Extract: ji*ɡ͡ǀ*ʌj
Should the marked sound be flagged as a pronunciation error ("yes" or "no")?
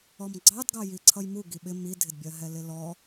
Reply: yes